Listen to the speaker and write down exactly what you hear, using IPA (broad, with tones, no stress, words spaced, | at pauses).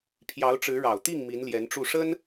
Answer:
pʰjɑ˧˥ʊ̯ʈ͡ʂɻ̩˧˥ɻɑ˨˩ʊ̯t̪i˥˩ŋ mi˧˥nljɛ˧˥nʈ͡ʂu˥˩ ʂə˥n